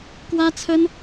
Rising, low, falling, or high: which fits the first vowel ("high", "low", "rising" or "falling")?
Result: high